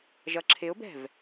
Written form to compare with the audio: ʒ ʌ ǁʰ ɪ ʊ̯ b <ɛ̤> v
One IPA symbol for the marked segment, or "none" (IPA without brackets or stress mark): ɛ̤